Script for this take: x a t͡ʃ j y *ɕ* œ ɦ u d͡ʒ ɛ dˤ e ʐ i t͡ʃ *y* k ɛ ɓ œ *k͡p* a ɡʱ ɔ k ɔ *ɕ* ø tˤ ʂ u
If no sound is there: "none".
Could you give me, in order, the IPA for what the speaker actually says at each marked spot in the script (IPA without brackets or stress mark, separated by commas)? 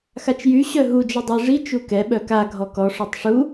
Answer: ɕ, u, k, ʂ